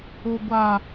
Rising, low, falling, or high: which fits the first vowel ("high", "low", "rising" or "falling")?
low